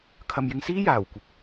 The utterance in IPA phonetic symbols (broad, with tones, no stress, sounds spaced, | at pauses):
kʰ ɐ˨ m j ɪ˧ ŋ s iː˥ j aː˨˩ w kʷ ɐ˨˥ p̚